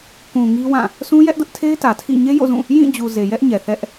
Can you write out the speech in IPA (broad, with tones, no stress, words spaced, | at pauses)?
kũ˨ ŋi˦wã˦˨ | sũ˦jɛ˦ʔdʊ˦ʔtʰe˦ɪ̯ tä˨tʰḭ˦˨ ɲe˦jo̰˦˨zũ˦˨ | jĩ˦˨d͡ʑu˨ ze˨jɛ˦ʔɲɛ˨ θɛ˦ʔ